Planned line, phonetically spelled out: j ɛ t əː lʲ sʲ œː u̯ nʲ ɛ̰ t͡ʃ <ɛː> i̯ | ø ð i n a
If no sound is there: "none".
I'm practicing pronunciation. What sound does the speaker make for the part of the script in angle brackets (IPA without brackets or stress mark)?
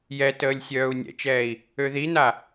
ɛː